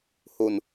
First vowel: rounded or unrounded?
rounded